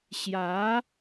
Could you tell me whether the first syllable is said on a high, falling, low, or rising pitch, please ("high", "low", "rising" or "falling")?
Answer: rising